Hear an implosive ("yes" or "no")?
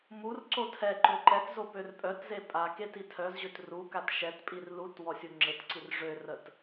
no